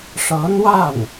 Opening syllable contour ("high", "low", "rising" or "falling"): rising